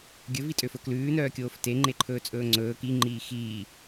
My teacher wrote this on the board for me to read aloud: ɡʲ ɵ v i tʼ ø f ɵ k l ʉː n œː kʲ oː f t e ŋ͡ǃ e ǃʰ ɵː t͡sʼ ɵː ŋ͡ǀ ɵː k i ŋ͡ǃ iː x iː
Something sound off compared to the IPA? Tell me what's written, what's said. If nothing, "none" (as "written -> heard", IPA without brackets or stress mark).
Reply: none